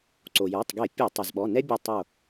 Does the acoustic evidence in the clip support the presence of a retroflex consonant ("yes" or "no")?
no